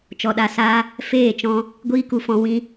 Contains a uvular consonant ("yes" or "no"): no